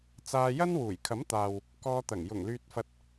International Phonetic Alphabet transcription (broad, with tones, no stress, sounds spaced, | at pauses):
t͡s aː˧ j ɐ˥ n w uː˨˩ j kʰ ɐ˨˥ m t̪ aː˨ w | k ɔː˧ t̪ ɐ˨˩ ŋ j ʊ˨˩ ŋ l yː˧ t̚ f ɐ˧ t̚